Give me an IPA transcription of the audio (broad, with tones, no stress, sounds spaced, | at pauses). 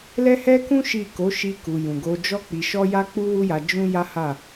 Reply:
l ɛ˦ h ɛ˦ k ũ˦ ʃ i˦˨ k o˨˦ ʃ i˧ k u˨ j ũ˨ ɡ o˧ d͡ʒ ɔ˦ k͡p i˧ ʃ ɔ˦ j a˦ k͡p u˦ w u˦ j a˧ d͡ʒ ũ˦ j a˦ h a˦˨